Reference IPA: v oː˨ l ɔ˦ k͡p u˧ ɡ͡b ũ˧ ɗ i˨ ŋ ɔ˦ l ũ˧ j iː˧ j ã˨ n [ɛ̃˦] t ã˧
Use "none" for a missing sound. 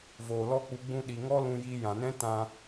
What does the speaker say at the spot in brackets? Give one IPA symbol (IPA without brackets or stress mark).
ɛ̃˦